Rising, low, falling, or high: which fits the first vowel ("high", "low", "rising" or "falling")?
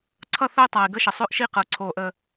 falling